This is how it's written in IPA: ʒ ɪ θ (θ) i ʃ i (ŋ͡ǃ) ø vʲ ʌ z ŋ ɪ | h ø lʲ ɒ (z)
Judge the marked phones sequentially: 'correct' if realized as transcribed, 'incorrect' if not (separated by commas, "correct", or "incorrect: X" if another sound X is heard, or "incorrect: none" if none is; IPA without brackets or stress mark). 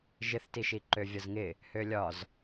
incorrect: t, incorrect: ǃ, correct